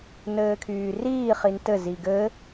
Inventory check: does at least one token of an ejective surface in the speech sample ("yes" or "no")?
no